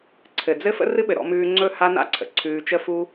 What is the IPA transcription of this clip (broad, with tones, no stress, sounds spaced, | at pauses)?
ǀʰ ɘ˨ d͡z ɘ˦ f ə̰˦ r ɨ˦ ɓ ɘ˨ ɾ ɔ̰˧ m ʉː˧ ŋ͡ǀ ɵ˦˨ h a˦ n a̰˦ ǀʰ ə̰˨ ǀʰ ʉː˧ t͡ʃ ə˦ f u˦